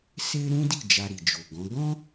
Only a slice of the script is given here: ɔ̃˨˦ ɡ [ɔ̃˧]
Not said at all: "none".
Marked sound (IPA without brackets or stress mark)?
ɔ̃˦